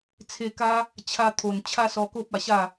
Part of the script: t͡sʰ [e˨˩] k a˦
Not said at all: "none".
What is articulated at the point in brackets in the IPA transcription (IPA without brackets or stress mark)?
e˧